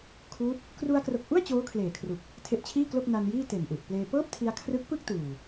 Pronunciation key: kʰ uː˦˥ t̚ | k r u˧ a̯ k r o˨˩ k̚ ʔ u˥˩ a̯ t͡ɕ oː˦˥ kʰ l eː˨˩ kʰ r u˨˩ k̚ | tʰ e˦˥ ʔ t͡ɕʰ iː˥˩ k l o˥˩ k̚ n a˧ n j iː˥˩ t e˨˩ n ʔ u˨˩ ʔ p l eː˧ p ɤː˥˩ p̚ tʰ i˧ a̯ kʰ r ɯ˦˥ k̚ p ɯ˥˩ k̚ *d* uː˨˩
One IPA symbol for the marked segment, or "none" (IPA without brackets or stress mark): t